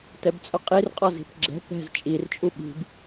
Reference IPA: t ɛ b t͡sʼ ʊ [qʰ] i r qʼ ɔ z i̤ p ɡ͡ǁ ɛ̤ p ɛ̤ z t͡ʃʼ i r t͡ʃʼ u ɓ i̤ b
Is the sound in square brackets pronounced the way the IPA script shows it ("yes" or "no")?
no